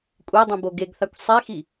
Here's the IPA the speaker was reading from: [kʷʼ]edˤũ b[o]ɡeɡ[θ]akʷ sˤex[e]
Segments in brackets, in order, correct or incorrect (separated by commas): correct, correct, correct, incorrect